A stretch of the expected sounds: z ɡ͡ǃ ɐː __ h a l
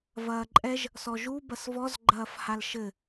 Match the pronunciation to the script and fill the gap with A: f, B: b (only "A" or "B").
A